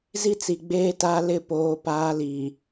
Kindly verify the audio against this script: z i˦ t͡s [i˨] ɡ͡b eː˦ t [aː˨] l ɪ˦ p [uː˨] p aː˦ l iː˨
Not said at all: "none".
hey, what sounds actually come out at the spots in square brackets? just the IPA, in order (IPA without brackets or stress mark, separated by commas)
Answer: i˨, aː˦, oː˨